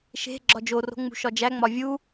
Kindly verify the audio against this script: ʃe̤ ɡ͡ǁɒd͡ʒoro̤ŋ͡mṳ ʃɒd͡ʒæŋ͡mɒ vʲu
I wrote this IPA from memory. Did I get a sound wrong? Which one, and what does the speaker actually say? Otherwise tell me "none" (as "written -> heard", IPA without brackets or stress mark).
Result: none